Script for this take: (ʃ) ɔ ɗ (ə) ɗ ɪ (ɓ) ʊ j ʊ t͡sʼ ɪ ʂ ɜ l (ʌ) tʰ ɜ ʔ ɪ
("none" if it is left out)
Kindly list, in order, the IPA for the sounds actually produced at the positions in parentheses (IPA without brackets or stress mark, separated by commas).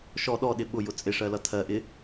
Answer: ʃ, ɔ, ɓ, ʌ